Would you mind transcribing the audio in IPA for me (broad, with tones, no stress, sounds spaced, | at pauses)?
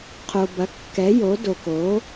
qʰ o˨ b ɐ˩˥ kː ɛ˩˥ j o˩˥ d o˨ k o˩˥